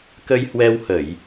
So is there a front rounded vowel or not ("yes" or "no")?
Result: no